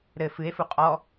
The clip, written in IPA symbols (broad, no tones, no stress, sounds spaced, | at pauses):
ɾ ɘ f ɨ e̯ f u qʼ ɔ